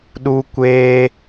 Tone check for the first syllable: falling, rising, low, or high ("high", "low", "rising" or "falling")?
high